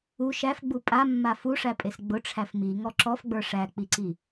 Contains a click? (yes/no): yes